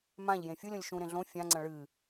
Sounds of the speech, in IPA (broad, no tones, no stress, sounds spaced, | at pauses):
m ã ʎ j ẽ fʲ u lʲ õ lʲ ʃ ũ ɾ ẽ ɮ õ fʲ ã ŋ͡ǀ ɐ̃ ɭ ɨ